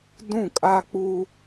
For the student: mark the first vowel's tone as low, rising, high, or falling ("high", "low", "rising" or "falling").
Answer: falling